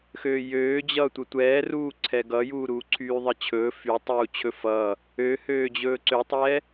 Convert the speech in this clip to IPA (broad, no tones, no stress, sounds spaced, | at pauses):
x øː j øː d͡ʑ ʌː tʷ ə tʷ ɛː r uː ǀʰ ɛ ɡ ʌ j uː ɾ uː ǀʰ yː ðˤ ə t͡ɕʰ ɵː f y tˤ uː t͡ɕʰ ɵ f ʌː | ø h øː d͡ʑ ɵː ǀ ø tˤ ɛː